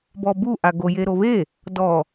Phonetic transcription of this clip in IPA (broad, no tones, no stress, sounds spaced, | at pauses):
b ɔ b u ʔ a ɡ o j e ɾ o β e | d ɔ